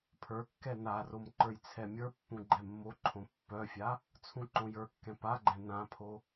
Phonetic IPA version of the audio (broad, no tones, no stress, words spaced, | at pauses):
pʰə˞kːɛ narom ǃə˞jt͡sʰɛmʲə˞pːũ ɡ͡ǃɛmːoǃʰõ pːœfʲa | t͡sʰũǃõjə˞kːɛ̃ paɡ͡ǃɛ̃ nãpʰo